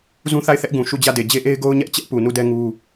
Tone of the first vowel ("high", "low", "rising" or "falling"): high